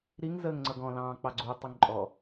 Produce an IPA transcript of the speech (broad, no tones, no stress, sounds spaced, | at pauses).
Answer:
ɾ i ŋ z əː ŋ ŋ͡ǀ ʌ ɡ ɔ̃ l ɑ̃ː k͡p ɑ ɡ͡ǀ u tˤ ʊ ŋ ǃʼ ɔ